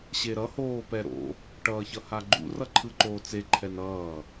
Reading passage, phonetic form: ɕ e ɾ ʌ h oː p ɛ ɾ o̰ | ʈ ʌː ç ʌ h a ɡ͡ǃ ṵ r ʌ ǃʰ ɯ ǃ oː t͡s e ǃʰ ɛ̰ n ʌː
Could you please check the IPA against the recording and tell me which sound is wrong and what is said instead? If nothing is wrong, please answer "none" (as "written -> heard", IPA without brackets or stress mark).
ɛ̰ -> ɛ